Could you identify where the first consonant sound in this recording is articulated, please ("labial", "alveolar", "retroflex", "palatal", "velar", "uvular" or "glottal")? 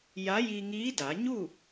palatal